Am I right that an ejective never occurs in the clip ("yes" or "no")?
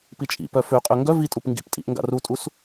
no